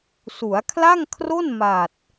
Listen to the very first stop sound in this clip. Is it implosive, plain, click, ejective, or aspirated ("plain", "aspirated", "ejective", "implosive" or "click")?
aspirated